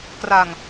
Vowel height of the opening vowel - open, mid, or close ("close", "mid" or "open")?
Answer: open